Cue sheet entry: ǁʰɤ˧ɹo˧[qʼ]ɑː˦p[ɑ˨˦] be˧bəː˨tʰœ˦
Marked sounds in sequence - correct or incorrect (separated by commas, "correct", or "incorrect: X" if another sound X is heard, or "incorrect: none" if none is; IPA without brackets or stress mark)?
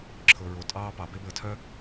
incorrect: tʼ, correct